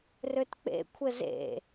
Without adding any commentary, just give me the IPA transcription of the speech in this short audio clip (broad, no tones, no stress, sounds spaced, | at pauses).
r ø t k͡p ḛ kʷʰ ɘ z ḛ